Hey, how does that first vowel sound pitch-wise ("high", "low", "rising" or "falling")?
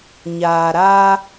low